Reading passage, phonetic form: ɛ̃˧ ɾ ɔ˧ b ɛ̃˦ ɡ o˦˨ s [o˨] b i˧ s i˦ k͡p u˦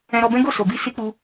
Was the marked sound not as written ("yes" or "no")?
no